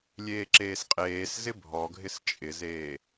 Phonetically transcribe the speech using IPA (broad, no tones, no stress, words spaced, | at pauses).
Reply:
lʲeːǁeːsqʼeːs zɪbʱɔɡʱɪs t͡ʃʼɪzeː